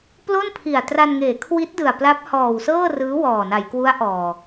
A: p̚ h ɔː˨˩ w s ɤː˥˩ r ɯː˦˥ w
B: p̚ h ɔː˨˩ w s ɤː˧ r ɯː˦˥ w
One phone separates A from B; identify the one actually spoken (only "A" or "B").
A